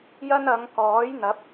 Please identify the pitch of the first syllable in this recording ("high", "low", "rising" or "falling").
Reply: high